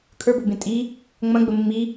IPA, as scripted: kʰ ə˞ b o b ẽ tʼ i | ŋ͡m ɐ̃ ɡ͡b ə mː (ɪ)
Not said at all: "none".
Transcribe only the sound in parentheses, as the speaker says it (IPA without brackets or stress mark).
i